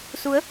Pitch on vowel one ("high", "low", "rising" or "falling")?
rising